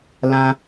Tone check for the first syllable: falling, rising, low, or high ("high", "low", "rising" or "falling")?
high